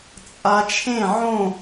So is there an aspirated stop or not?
yes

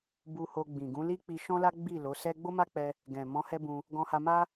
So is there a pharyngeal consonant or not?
no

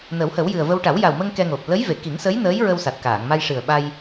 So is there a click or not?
no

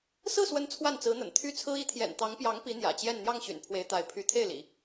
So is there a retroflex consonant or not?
no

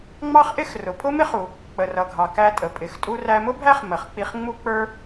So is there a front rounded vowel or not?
no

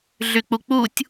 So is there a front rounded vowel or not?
yes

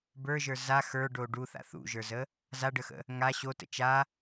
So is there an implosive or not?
no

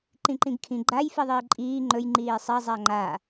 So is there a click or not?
yes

